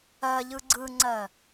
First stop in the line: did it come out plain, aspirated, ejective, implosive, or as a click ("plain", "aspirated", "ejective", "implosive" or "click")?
click